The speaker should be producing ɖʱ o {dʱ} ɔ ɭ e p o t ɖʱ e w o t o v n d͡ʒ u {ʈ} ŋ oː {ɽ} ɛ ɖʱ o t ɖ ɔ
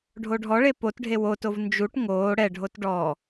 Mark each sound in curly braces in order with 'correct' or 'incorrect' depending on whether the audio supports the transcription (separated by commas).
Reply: incorrect, correct, correct